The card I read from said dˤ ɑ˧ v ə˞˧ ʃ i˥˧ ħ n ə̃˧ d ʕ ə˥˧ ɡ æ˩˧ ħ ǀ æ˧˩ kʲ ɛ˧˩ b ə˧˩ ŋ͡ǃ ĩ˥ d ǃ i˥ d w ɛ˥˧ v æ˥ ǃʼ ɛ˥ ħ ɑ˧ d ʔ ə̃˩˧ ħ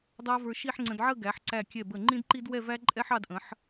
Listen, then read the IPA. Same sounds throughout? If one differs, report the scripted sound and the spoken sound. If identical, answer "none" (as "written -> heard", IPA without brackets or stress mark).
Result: n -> ŋ͡ǀ